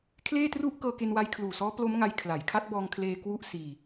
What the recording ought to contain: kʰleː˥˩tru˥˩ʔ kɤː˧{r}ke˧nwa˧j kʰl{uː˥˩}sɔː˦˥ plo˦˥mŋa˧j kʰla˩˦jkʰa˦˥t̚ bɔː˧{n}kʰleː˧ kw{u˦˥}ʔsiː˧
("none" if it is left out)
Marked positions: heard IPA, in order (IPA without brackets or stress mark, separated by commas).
none, uː˨˩, ŋ, u˥˩